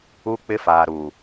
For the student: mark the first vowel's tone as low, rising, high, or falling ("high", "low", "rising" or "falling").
high